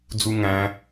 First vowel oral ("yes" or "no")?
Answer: yes